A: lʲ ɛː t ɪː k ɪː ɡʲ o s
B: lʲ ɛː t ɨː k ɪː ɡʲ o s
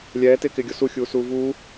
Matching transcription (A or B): A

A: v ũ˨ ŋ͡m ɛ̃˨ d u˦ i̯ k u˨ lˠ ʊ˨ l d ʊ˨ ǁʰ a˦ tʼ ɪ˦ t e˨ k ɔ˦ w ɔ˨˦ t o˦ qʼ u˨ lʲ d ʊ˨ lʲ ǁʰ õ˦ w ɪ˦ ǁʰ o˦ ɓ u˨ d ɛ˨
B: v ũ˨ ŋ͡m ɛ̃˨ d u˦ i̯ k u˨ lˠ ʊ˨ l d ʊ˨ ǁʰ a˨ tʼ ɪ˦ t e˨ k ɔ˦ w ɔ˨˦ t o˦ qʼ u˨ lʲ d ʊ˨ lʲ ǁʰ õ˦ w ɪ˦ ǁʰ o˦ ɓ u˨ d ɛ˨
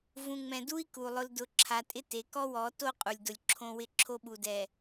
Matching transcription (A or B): B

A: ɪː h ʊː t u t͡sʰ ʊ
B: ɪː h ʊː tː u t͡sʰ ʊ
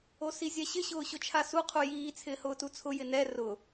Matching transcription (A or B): A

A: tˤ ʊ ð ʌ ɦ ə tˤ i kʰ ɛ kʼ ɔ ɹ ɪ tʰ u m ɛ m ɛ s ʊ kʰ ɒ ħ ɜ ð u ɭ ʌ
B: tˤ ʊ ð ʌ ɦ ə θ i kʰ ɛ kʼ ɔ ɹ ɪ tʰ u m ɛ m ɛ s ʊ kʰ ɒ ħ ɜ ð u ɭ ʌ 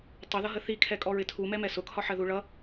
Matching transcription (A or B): B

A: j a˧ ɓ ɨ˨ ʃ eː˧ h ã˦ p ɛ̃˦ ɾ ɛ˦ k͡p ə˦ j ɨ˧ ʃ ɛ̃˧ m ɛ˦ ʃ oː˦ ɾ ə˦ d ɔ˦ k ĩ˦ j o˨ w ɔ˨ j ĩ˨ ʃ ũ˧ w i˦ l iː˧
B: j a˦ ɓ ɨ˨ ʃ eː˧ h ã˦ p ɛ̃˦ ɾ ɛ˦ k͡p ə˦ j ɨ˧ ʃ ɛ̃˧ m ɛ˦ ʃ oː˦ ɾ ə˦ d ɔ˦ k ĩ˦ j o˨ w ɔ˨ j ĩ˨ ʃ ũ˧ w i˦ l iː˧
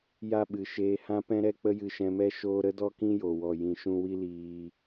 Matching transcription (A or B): B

